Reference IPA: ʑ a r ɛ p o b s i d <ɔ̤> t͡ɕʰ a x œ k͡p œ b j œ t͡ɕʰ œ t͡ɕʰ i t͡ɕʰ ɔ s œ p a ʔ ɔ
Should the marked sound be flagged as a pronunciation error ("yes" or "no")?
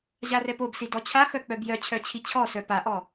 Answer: yes